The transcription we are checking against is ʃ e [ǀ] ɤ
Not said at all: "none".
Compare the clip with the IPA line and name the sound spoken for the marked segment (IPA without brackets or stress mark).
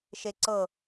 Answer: ǀ